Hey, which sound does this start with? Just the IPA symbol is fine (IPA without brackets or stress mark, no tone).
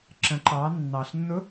ǁ